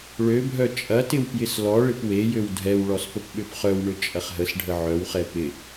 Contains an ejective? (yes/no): yes